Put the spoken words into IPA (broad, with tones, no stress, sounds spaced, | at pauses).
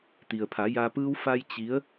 t̪ i˩ ə̯ pʰ a˩˧ j a˧ p ɯː˧ w f a˧ j t͡ɕ i˧˥ ə̯